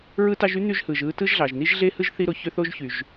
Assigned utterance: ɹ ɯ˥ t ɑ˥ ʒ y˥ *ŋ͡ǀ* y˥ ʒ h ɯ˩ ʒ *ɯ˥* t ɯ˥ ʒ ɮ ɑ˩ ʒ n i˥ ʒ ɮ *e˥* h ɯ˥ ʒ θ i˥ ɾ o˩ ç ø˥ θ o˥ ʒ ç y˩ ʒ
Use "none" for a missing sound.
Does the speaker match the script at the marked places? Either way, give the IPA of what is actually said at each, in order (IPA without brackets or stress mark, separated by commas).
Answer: n̪, ɯ˥, e˥